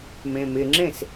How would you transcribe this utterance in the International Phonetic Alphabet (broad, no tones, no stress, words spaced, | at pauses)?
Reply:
mẽmɪŋ͡ǁẽs